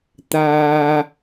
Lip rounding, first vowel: unrounded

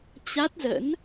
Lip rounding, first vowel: unrounded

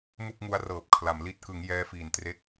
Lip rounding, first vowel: rounded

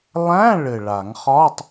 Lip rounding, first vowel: unrounded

